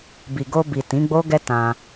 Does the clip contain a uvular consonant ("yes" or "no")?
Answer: no